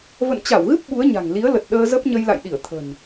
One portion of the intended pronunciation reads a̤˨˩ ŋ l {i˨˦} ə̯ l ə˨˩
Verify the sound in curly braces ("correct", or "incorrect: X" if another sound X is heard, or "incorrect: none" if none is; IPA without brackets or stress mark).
correct